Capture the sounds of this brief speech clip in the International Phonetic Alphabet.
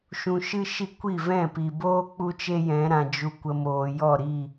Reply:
ʃ ũ˧ ʃ ɨ˦ ʃ i˦ kʷ i˦˨ v ɛ̃˦˨ p i˨ b oː˦ k͡p u˦ t͡ʃ e˦ j ɛ̃˨˦ ɾ ã˨ d͡ʒ u˨ kʷ ə˨ m oː˨ j ɔ˦˨ ɾ i˦˨

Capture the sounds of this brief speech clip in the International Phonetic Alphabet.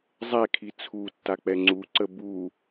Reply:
zˤ ɛ kʰ i t͡sʰ u tː a k͡p ɛ ŋ͡ǀ u ǀ ə b u

